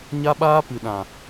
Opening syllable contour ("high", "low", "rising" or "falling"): high